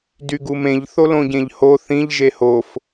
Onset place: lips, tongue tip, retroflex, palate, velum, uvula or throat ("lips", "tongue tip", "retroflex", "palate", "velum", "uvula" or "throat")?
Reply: tongue tip